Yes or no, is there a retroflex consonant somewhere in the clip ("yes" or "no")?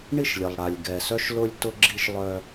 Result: yes